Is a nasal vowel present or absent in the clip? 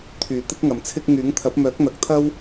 absent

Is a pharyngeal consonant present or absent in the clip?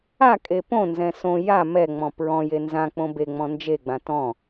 absent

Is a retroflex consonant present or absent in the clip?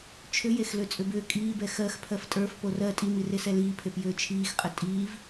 absent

